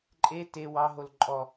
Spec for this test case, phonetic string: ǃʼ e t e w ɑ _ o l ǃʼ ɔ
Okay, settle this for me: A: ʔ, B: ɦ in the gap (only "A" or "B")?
B